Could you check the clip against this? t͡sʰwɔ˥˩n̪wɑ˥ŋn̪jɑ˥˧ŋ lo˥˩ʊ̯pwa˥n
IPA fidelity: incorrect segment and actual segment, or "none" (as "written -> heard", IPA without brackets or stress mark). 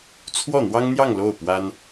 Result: none